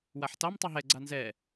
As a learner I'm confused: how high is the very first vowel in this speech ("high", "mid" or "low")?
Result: low